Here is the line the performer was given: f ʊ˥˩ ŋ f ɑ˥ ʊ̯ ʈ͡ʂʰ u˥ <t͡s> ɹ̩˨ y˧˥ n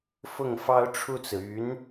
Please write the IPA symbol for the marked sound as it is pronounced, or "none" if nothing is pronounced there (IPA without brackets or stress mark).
t͡s